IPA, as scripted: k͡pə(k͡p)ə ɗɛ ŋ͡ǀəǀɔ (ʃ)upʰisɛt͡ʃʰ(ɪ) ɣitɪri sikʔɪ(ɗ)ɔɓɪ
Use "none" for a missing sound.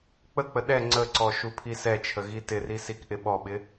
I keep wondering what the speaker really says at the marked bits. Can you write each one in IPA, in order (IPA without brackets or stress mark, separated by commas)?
k͡p, ʃ, ə, ɓ